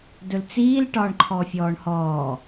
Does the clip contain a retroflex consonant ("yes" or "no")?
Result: yes